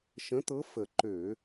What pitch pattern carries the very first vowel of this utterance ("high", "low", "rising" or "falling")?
rising